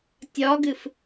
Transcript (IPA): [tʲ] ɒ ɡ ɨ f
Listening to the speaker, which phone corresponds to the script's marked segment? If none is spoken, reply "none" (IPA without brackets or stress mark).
tʲ